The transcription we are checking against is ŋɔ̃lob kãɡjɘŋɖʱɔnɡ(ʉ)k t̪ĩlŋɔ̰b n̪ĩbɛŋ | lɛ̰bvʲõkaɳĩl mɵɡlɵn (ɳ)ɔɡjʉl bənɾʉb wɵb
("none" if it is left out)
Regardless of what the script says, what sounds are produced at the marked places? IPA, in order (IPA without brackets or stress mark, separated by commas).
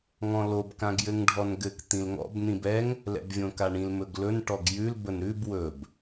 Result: ɘ, ʈ